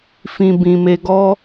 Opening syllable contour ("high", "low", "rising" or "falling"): low